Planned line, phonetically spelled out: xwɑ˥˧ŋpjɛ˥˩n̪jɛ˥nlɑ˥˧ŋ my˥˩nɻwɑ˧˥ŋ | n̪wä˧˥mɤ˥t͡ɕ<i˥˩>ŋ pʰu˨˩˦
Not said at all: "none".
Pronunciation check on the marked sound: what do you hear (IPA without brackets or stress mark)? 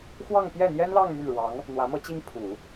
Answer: i˥